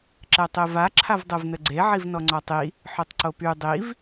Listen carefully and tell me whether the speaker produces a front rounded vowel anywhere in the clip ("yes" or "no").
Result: yes